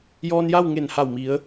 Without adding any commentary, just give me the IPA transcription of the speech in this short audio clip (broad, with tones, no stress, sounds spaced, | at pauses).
j ɔː˧ n j a˥˨ w ŋ e˧˩ n h a˧˩ w m i˩˧ ə̯